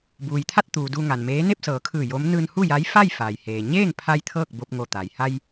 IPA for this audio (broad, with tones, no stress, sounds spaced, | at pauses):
b uː˩ j t̪ʰ a˥˨ t̚ t̪ uː˩ d u˧ ŋ a˩ n m eː˧˥ n e˥˨ p̚ s ɤː˩˧ kʰ ɯː˧˩ j o˧˥ m n ɯː˧ n h u˥˨ j a˧˥ j f a˥˨ j f aː˩ j h eː˩ ɲ eː˥˨ ŋ pʰ a˧ j t̪ʰ ɤː˥˨ k̚ b o˧ p̚ ŋ o˧˩ t̪ a˩ j h a˧ j